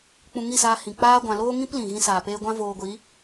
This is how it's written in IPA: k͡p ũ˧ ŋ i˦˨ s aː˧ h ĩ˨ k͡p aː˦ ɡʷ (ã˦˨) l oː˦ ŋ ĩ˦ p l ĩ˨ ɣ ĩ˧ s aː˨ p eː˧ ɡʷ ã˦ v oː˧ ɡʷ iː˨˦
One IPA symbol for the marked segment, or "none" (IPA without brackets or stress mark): ã˧